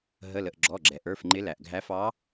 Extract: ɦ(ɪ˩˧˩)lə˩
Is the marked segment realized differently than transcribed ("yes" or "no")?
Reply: yes